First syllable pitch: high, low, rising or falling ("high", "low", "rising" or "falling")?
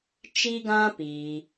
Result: high